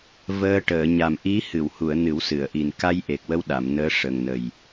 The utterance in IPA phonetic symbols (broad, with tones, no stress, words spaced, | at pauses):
vəː˧ʈəː˨˩˨ ɲa˨˩mʔi˧˥hɨ˨˩˨whu˨˩˨ə̯ nɨ˨˩˦wsɨ˨˩˨ə̯ʔi˨˩n ka˧j ʔe˨˩k̚wə˧w ɗa˨˩˨mnəː˧˥ ʂə˨˩ŋnə˨˩j